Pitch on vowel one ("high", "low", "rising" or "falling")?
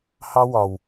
high